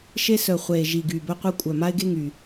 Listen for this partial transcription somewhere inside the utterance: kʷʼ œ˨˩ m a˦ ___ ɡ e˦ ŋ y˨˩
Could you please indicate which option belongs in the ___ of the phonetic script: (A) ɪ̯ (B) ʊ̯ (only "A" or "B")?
A